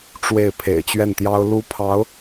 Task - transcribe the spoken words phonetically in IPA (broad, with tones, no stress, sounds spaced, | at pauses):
ʈ͡ʂ w e˥˩ ɪ̯ pʰ ḛ˨˩ ɪ̯ t͡ɕ ɥ ɛ˥˩ n t̪ j ɑ˥ ʊ̯ l u˥ pʰ ɑ˧˥ ʊ̯